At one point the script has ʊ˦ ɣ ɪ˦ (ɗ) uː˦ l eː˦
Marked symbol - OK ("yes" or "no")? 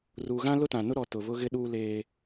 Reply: yes